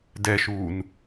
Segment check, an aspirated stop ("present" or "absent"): absent